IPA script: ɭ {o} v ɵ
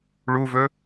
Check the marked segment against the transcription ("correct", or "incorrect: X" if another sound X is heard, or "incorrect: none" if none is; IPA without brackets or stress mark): incorrect: u